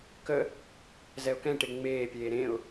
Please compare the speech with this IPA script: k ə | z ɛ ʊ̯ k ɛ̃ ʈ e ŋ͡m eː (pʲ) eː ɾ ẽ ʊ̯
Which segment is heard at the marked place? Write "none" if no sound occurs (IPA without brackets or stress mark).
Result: pʲ